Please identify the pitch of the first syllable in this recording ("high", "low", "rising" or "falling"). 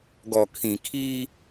low